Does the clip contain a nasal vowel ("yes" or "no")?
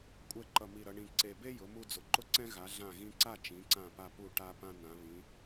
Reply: yes